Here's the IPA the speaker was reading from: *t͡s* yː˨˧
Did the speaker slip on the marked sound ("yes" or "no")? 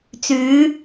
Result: no